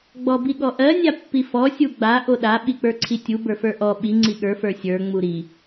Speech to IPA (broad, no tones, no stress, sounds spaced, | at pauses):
ɡ͡b ɔ b i ɠ ɔ ʔ ɜ nʲ a pː i f ɔ sʲ u ɡ͡b a ʔ o ɗ a ɓ i k͡p ə˞ ǀʰ i tʲ u b ə˞ f ə˞ ʔ ɔ ɓ i ŋ͡ǀ i ɠ ə˞ f ə˞ sʲ ə˞ ŋ͡m u ɾ i